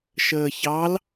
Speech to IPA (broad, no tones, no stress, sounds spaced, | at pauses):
ʃ əː ç ɑ l